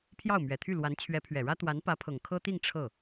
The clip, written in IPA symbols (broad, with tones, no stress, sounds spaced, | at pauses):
pʰ j ɑ˥˩ ʊ̯ m ɥ ɛ˨˩ t̪ʰ y˥˩ l w a˧˥ n t͡ɕʰ ɥ ɛ˧˥ pʰ ɥ ɛ˨˩ ɻ ä˥ t̪ w a˧˥ n p ä˧˥ pʰ ɤ˨˩ ŋ kʰ ɤ˥ t̪ i˥˧ ŋ ʈ͡ʂʰ ɤ˥˩